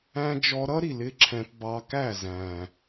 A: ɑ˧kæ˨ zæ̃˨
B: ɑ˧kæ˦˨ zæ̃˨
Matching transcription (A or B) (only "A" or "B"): B